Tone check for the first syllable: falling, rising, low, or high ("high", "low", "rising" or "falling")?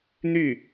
falling